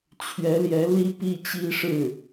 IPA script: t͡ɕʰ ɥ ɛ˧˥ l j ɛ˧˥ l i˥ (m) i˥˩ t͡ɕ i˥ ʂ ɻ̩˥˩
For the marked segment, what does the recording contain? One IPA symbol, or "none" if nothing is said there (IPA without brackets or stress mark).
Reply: p